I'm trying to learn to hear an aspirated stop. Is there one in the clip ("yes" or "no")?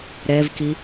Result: no